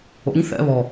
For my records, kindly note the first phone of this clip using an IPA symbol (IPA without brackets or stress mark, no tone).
o̰